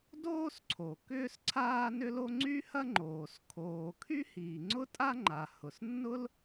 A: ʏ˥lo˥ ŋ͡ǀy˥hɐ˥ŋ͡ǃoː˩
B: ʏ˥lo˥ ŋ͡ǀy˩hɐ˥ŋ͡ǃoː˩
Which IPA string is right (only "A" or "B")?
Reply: A